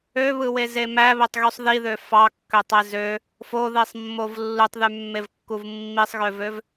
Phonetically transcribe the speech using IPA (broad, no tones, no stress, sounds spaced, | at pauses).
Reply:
ø β ɯ w e z e m æ β e tˤ ɣ y sˤ ð i ð ø f ɑ kː ø tˤ e z ø | f o ð i sˤ mː o v lː u tˤ ð y mː e v kː u v mː i sˤ ɣ ø v ø v